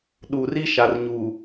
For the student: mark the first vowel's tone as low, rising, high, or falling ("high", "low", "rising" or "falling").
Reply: low